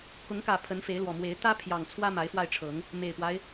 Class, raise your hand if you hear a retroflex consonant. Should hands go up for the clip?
yes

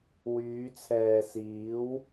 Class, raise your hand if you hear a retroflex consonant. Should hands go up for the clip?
no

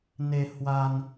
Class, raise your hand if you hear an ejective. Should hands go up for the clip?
no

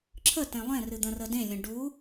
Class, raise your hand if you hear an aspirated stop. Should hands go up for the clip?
yes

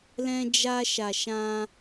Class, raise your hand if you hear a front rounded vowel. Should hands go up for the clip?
no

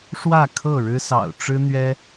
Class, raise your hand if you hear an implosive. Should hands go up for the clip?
no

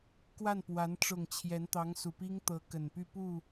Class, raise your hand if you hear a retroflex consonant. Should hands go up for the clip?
yes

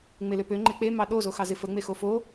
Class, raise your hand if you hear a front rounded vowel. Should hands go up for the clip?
yes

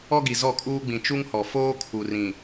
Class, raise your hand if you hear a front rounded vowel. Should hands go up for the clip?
no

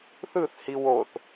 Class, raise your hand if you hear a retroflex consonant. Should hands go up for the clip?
no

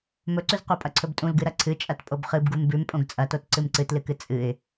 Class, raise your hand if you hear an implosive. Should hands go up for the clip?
no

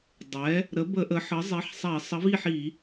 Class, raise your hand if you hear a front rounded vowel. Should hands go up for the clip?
no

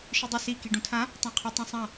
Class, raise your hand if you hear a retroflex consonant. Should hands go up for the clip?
yes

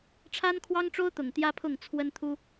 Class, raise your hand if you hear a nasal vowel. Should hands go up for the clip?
no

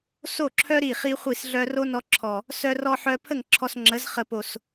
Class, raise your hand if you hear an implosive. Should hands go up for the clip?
no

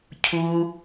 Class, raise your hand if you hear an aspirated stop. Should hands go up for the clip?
yes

